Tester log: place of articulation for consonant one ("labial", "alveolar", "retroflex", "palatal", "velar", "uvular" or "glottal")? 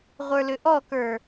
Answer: uvular